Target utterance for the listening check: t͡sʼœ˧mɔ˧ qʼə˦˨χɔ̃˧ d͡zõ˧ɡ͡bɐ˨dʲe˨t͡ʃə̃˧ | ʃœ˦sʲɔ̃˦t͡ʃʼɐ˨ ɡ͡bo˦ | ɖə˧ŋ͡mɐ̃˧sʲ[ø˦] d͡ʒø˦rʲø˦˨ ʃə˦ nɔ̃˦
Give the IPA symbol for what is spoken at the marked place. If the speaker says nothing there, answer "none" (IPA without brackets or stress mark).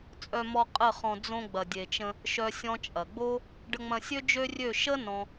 ø˦